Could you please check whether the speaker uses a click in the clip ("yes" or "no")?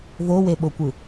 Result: no